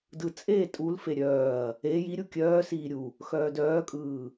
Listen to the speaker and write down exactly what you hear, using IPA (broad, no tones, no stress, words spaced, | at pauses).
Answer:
dɯt͡sʼeː tʼulfe ɾʲœːɐ̯ | e ji ɾʲukʲœːsiː ɾʲu | xœːdœːkʼɯː